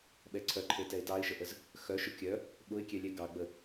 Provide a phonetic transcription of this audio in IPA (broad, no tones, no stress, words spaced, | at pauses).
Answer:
ɓɛǀʰœǃʰe tɛɪ̯tɑɪ̯ʃəʔəz | xœʃʊ kʲœ | ɓʊɪ̯kʲɛlʲɛ ɡɑɡ͡bə